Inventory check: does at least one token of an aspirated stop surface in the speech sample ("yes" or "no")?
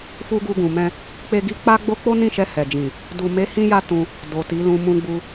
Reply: no